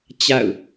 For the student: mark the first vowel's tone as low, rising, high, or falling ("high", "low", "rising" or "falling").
falling